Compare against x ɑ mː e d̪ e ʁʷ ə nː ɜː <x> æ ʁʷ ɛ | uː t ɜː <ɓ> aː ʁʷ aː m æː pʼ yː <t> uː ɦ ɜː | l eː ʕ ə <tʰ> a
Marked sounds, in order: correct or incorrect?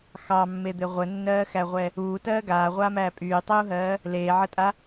correct, incorrect, incorrect, incorrect

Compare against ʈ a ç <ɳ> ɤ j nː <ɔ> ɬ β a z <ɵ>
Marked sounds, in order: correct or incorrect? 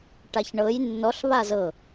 correct, correct, incorrect

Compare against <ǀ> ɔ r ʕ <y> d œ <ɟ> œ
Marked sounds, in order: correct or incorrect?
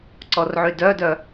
correct, correct, incorrect

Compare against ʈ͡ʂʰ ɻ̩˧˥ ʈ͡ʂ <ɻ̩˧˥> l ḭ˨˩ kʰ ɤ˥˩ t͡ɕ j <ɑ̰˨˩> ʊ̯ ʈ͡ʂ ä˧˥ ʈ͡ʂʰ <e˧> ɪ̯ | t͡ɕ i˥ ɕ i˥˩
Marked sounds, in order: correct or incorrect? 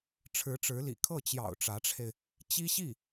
correct, correct, correct

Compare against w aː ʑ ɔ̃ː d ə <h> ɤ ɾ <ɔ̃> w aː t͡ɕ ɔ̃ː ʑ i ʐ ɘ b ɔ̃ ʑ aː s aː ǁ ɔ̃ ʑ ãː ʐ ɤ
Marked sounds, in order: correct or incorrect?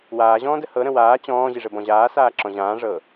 correct, incorrect

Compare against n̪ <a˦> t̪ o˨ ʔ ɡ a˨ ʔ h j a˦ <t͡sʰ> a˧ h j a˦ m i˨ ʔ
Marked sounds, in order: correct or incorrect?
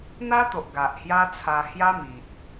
correct, correct

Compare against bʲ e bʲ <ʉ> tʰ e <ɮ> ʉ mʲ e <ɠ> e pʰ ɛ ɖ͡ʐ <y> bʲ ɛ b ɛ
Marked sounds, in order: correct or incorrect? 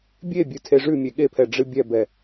correct, incorrect, correct, incorrect

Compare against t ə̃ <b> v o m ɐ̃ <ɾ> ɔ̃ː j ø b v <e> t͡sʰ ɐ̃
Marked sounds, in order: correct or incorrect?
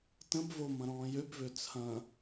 correct, correct, incorrect

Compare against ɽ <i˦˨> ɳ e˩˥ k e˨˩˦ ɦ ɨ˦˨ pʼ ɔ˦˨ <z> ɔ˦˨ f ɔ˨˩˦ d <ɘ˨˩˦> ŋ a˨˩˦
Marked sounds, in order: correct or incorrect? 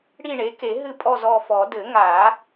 correct, correct, correct

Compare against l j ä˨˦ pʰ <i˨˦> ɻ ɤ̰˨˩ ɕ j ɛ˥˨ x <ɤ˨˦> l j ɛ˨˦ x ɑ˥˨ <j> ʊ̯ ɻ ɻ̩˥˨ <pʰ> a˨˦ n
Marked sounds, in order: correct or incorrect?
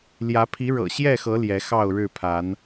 correct, correct, incorrect, correct

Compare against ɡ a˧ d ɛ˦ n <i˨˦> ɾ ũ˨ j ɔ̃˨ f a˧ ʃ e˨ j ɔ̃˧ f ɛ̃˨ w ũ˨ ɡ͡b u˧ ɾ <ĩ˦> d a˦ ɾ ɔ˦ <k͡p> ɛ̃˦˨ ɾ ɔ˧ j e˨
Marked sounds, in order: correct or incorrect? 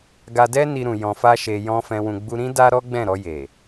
incorrect, correct, incorrect

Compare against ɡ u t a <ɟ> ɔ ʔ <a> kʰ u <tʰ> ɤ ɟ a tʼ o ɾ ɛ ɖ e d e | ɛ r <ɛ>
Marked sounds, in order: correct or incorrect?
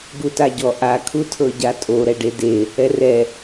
correct, correct, correct, correct

